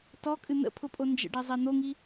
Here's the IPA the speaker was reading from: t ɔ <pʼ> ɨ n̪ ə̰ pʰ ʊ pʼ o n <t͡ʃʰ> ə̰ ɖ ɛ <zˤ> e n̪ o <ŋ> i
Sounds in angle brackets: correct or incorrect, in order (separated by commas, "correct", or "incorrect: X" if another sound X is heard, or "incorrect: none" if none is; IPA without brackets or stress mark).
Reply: incorrect: kʼ, incorrect: d͡ʒ, correct, correct